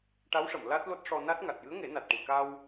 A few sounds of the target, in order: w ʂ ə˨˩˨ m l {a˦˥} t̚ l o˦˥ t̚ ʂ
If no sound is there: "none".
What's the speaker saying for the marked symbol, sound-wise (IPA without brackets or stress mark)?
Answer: a˦˥